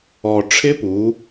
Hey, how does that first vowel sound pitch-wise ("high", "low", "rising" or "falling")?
low